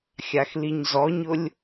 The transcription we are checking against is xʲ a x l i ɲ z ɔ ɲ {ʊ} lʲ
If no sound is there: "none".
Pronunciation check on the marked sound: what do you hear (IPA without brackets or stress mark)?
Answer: ʊ